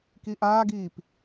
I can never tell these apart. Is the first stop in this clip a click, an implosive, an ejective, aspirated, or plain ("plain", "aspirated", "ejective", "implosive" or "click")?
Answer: plain